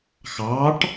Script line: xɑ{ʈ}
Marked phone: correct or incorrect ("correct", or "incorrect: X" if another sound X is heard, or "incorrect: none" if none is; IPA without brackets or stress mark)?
correct